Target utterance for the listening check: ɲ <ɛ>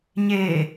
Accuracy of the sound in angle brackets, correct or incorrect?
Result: incorrect